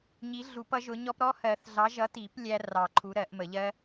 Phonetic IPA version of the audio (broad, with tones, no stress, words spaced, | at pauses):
ɲi˨˥ ɮu˨˩˦pʌ˨˥ʒʊ˨˥ɲɔ˦˥p ɾɔ˦˥hɜ˨˩˦θɮɑ˨˥ ʒʌ˨˥ti˨˩˦p lʲæ˦˥rɑ˨˩˦ǃʰu˨˥ ɾɜ˨˩˦ʔmə˨˩˦ʎɜ˦˥